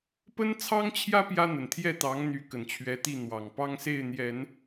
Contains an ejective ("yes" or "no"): no